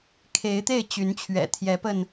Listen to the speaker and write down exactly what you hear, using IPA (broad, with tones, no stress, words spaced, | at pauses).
kʰe˨˦ɪ̯t̪e˥˨ɪ̯t͡ɕy˨˦nt͡ɕʰɥɛ̰˨˩ t̪ʰjɛ˨˦pə˧n